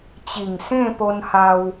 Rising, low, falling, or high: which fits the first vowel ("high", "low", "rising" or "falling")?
low